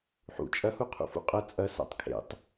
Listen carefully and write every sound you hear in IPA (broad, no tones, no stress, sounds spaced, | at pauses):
ħ ṵ t͡ʃʼ ɐ h u qʰ ṵ f ṵ qʼ ɐ t͡sʼ ɐ s a̰ tˤ kʰ ḛ tˤ